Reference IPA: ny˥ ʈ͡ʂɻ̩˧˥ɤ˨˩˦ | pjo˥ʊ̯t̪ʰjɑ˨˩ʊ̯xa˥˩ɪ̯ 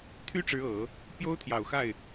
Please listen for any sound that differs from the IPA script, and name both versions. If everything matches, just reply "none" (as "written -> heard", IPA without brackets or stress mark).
n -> t̪ʰ